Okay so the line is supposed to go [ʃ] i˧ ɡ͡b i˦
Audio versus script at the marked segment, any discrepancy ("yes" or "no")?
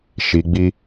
no